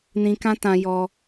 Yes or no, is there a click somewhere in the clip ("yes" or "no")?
no